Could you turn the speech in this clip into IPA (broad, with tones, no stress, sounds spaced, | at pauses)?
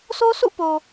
s o˦ s ṵ˦˨ p o˨